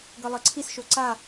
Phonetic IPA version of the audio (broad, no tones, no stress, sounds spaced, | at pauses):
ɡ ɤ lˠ ɤ ǀʰ i s ʃ o ǀ a